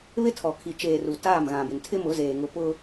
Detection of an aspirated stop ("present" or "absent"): present